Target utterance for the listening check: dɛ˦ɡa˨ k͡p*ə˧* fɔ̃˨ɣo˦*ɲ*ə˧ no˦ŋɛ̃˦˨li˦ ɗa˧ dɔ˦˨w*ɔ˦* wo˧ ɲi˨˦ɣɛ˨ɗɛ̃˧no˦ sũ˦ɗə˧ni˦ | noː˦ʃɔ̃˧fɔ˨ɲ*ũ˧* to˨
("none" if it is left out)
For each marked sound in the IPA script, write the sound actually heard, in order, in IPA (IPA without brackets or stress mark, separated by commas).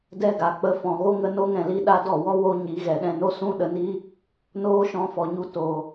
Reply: ə˧, ŋ, ɔ˦, u˧